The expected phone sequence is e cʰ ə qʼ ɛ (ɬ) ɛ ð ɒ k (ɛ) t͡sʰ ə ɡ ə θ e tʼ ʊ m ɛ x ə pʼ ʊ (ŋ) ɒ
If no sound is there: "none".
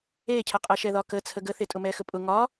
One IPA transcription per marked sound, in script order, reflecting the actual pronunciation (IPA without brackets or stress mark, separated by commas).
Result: ʃ, ə, ŋ